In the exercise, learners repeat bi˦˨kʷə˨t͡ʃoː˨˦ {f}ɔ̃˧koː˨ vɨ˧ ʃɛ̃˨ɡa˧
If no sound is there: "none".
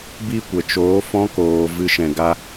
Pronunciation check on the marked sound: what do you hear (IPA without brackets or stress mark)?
f